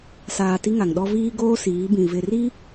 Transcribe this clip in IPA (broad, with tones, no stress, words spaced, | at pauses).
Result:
saː˨ ti˦ŋa˨ŋɗɔ˦ viː˦ɡoː˦ siː˨˦bĩ˨ vɪ˨ri˦